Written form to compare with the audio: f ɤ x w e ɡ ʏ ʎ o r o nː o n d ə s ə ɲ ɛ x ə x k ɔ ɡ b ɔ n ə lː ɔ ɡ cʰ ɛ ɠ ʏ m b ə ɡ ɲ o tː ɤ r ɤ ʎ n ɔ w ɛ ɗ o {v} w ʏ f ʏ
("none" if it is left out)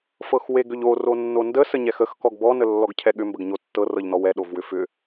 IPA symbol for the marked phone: v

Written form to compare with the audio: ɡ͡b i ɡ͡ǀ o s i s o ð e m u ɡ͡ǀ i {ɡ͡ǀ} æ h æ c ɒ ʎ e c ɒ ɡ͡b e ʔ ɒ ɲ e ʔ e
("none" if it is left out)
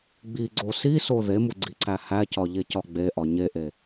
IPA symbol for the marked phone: ǀ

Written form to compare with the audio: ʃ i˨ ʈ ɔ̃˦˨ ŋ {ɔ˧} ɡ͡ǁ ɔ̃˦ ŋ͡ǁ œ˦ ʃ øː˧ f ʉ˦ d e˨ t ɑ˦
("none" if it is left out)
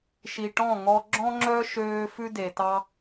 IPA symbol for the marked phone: ɔ˧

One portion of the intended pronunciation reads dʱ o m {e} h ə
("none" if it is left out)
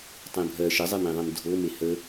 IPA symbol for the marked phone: e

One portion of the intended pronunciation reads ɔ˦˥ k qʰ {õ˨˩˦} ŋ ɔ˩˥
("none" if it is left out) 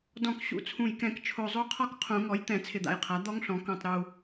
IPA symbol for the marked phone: ũ˨˩˦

